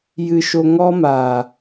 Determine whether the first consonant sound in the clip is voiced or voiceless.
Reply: voiced